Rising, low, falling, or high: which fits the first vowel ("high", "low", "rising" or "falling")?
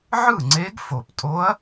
falling